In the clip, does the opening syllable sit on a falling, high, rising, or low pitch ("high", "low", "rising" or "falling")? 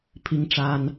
high